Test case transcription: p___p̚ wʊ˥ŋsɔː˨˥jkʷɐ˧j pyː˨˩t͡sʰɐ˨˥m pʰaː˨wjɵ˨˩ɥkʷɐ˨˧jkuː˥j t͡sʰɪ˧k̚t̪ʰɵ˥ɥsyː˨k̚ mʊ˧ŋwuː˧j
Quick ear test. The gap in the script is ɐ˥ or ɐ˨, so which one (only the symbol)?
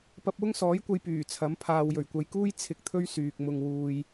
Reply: ɐ˥